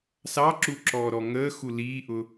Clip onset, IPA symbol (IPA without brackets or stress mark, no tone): s